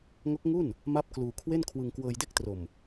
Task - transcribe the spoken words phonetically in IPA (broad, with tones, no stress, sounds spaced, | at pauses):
ŋ o˦˥ k̚ ŋ u˥˩ n | m a˥˩ p̚ k l uː˧ kʰ w e˥˩ n kʰ w ɯ˧ ŋ k w ɤː˧ j d e˥˩ k̚ t r o˨˩ m